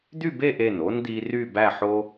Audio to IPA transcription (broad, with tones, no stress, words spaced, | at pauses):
d̪y˥˧be˥˧ʔe˧˩n o˥nd̪i˧ ry˥˧bæ˥˧ħo˥